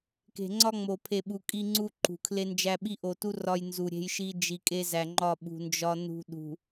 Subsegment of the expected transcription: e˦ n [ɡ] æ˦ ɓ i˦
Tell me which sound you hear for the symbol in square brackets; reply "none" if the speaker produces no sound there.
d͡ʒ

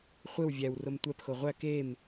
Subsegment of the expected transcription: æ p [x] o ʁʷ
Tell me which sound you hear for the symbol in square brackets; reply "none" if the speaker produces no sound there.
x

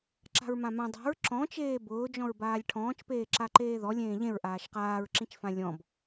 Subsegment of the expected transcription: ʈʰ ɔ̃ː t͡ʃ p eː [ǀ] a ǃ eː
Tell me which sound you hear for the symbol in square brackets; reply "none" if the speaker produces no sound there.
ǁ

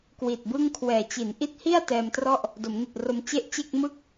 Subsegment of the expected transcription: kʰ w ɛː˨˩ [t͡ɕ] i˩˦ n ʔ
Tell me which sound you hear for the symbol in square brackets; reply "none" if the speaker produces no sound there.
t͡ɕ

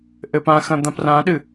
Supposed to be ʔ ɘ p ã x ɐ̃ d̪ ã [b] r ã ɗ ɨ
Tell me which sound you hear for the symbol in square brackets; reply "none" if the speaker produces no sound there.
p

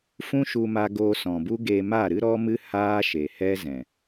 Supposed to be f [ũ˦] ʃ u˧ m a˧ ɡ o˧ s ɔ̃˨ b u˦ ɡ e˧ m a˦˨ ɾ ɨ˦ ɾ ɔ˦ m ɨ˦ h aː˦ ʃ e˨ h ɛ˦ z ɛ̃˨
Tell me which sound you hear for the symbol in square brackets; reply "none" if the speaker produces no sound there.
ũ˦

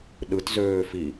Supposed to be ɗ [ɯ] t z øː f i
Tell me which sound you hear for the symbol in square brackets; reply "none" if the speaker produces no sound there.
ɯ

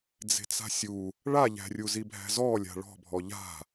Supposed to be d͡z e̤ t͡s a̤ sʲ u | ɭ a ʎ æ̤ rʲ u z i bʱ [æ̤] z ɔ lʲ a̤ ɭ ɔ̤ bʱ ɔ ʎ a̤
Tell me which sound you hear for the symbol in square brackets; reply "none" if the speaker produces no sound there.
æ̤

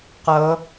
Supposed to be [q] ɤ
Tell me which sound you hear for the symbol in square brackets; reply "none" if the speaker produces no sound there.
q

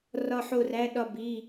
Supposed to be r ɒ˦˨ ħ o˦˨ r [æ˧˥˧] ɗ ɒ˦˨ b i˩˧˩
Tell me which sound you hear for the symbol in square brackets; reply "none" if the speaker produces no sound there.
æ˧˥˧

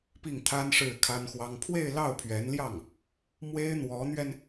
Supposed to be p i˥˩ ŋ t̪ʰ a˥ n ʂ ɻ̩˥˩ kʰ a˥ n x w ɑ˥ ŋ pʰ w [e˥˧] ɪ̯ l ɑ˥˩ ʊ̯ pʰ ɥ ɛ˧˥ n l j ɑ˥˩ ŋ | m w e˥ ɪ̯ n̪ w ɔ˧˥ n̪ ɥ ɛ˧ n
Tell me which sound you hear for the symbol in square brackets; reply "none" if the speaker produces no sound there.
e˥˧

